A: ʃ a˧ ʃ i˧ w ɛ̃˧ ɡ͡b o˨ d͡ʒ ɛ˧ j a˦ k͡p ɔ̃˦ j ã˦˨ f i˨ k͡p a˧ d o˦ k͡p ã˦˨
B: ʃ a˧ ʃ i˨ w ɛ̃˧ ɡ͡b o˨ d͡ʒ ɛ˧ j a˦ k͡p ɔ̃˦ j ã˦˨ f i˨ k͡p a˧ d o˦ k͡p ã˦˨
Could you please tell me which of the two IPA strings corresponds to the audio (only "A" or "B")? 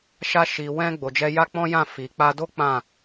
B